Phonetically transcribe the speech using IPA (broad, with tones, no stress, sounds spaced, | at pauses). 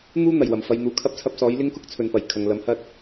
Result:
n̪ uː˥ n̪ ɐ˨˩ j w ɐ˨˩ m f ɐ˨˧ j n̪ uː˨ kʰ ɐ˥ p̚ t͡sʰ ɐ˧ p̚ s ɔː˨˥ j l ɪ˥ ŋ k ʊ˥ k̚ t͡sʰ ɵ˨ n p ɐ˨˩ j kʰ ɐ˨ ŋ l ɐ˨˧ m h ɐ˥ t̚